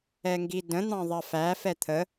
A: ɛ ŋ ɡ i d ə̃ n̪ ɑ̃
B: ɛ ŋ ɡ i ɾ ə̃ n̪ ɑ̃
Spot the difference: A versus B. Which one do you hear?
A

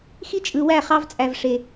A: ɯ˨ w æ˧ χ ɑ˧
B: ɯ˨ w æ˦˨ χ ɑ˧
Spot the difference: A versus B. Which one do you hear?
B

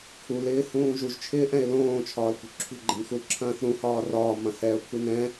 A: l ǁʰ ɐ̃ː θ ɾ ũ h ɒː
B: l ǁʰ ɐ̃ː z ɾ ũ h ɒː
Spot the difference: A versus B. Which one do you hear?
A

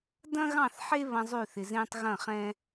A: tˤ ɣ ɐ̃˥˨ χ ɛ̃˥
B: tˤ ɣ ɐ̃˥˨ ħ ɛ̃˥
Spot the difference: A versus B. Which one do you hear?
A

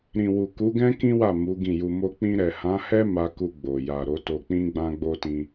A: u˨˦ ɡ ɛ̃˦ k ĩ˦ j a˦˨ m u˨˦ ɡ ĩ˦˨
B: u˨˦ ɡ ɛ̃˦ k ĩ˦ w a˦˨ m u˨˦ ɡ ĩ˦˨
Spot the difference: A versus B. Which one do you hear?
B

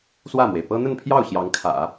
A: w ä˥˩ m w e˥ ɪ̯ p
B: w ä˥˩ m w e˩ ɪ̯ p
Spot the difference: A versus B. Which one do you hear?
B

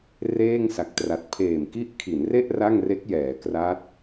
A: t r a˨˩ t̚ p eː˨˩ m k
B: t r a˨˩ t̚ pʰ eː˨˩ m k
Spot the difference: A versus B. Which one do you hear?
B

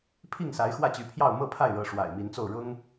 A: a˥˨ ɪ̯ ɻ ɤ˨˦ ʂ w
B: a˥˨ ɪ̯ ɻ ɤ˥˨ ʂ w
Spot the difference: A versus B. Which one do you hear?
A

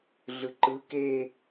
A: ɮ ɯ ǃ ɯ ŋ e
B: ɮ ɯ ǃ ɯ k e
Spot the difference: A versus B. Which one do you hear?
B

